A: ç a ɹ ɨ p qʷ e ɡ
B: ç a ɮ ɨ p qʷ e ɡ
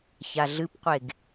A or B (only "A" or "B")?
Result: B